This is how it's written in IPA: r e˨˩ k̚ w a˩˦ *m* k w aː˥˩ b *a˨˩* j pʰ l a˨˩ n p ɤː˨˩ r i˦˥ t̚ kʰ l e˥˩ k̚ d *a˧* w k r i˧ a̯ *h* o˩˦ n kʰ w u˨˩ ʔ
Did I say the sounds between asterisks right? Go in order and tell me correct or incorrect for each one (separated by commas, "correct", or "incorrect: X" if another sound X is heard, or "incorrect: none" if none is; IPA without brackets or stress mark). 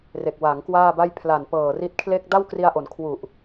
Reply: incorrect: ŋ, incorrect: a˥˩, incorrect: a˥˩, incorrect: ʔ